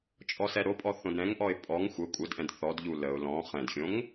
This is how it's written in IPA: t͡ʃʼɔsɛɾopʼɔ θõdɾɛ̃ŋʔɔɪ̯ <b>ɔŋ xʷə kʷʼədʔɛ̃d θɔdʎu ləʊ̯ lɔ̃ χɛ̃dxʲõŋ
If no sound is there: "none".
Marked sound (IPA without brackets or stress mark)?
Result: pʼ